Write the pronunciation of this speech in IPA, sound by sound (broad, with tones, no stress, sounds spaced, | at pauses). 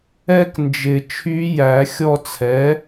ɛ˥ k n d͡ʒ ɪ˨˩˦ t͡ʃʰ y˧˥ j æ˨˩˦ xʲ ɔ˦˨ t͡sʰ ɛ˩˥